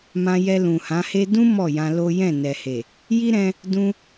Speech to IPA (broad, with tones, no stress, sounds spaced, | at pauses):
m ã˧ j ɛ˧ l ũ˨ h ã˨˦ h e˦ d ũ˦ m ɔ˦˨ j ã˧ l o˦ j ɛ̃˦˨ n ɛ˨ h e˨ | j i˦ ɾ ɛ̃˧ | d ũ˧